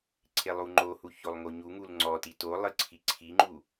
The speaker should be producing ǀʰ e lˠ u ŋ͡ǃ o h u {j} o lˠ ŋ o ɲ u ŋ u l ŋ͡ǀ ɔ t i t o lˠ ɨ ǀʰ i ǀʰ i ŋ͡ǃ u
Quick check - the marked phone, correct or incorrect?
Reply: incorrect